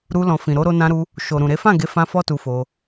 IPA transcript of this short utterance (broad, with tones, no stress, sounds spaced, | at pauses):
ɾ u˧ l ɔ̃˨ f ĩ˨ ɾ o˨˦ ɾ o˧ n ã˧ ɾ u˧ | ʃ o˨ ɾ ũ˨ ɾ e˨˦ f ã˦˨ ɡ e˨˦ f ã˧ f ɔ˦ t u˧ f o˧